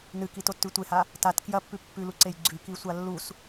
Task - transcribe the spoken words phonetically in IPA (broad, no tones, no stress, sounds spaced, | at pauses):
n ɨ k i t o tː ʉ tʷ e h a | t a t k j ɐ pː ʉ pː ʉ l u ǀ e j ɡ͡ǀ ʉ k i sʷ a lː u s